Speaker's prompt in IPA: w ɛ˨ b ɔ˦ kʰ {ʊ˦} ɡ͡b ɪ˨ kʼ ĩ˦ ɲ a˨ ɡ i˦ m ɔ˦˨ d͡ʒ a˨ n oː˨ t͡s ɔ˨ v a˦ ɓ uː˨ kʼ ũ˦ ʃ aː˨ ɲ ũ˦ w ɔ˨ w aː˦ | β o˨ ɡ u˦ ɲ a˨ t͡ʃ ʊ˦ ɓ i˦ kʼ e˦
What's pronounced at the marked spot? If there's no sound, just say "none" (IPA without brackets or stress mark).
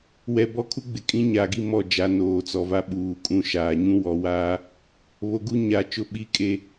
u˦